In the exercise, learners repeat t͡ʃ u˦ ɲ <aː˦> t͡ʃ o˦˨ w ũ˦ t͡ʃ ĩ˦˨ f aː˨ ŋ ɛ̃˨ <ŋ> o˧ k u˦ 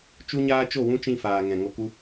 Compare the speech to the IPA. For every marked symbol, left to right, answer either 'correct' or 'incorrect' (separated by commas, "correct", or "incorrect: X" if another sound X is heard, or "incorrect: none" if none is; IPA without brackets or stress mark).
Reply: correct, correct